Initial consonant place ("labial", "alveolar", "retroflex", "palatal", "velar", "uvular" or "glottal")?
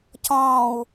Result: palatal